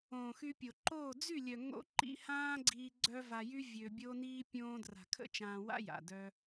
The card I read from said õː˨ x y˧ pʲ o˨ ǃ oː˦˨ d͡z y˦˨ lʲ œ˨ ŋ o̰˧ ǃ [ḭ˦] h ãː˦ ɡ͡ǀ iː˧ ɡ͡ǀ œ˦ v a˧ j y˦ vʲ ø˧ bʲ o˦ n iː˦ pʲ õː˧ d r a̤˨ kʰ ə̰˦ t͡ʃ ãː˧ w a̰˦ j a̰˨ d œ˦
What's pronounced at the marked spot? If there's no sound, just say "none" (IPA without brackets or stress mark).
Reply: ḭ˧